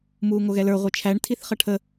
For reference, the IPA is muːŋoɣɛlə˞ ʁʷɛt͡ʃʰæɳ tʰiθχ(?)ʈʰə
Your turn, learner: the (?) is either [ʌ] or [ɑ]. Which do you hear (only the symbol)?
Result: ʌ